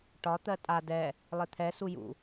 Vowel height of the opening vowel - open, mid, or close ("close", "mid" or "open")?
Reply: open